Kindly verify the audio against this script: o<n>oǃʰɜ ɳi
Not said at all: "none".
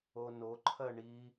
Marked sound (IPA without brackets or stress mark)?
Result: n